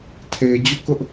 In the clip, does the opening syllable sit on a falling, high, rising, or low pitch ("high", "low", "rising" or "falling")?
low